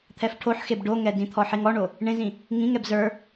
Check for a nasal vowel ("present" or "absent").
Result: present